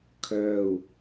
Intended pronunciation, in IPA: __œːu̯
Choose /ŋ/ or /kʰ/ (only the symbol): kʰ